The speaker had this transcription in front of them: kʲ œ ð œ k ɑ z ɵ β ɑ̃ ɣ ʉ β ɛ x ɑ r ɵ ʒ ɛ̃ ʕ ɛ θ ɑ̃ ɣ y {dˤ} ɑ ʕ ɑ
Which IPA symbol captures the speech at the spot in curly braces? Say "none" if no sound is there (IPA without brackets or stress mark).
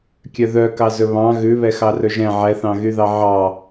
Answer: ð